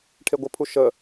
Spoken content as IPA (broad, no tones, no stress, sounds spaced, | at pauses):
ʈʰ e ɡʷ ə pʰ u ʃ ə